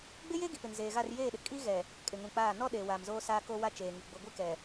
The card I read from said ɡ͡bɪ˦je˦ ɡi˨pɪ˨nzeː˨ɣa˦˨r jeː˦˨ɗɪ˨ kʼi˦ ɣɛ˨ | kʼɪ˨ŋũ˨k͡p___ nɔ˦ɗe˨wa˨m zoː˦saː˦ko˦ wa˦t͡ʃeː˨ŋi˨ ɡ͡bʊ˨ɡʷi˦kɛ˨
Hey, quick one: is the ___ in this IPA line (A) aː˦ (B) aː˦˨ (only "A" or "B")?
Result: B